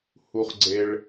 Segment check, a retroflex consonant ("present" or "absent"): present